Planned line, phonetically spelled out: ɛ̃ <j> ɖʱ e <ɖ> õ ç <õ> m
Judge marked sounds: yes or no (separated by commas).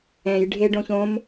yes, yes, yes